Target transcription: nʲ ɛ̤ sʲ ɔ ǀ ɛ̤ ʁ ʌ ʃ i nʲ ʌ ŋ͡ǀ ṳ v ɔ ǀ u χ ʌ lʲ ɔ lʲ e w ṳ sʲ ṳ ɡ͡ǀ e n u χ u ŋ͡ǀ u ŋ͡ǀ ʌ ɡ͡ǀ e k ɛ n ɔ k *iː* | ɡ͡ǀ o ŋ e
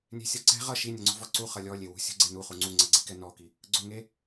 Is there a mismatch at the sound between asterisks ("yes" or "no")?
yes